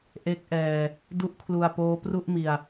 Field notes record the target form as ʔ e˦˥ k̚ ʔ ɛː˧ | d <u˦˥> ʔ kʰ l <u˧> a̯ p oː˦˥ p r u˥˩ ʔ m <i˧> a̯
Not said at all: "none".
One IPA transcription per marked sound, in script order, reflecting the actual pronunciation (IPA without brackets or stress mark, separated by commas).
u˦˥, u˧, i˧